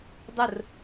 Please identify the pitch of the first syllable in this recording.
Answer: falling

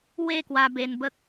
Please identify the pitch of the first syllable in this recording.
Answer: falling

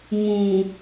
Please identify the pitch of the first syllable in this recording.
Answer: low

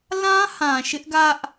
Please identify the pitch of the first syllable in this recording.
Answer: high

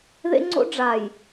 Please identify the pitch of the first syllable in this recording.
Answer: high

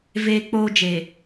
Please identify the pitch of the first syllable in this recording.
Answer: high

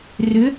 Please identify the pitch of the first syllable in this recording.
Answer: rising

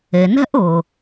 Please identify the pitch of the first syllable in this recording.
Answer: low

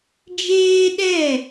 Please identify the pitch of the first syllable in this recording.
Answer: high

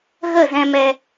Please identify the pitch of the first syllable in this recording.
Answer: falling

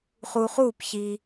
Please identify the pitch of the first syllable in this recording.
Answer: low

